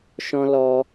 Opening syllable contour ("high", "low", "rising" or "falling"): high